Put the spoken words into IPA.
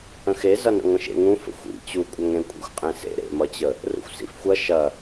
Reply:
ə̃ x e z ʌ n ə̰ ŋʷ ə̃ ʃ ḛ ŋ ũ f ə̰ xʷ ḭ t͡ɕ u kʷʼ ɐ ŋ ɾ ẽ kʷʼ ḭ xʷ qʼ ẽ s ḛ ɾ ḛ m ʌ t͡ɕ ə | r ṵ xʷ s ḭ f xʷ ɐ ʃ ɐ

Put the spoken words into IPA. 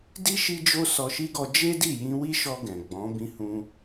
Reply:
d i˦ ʃ i˦ d͡ʒ o˦ s ɔ˧ ʃ i˦ ɡ ɔ˧ d͡ʒ e˦ d i˦˨ j ĩ˧ w i˦ ʃ ɔ˧ ɡ ɛ̃˨ ɡ͡b ɔ̃˨˦ b ĩ˧ h ũ˧

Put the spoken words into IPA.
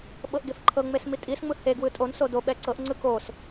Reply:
ɓ ɤ ʔ ɡ e f ǃʰ ɤ ŋ͡m e s m i tʼ i s ŋ͡m ɯ h e ɡ w ɯ tʼ o n s o d o ɓ ɛ ǀ ɤ ʔ ŋ͡ǀ ɯ k o s

